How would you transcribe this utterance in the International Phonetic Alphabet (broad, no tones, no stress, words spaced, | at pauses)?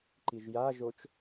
ǃiʒja ʒot͡ʃ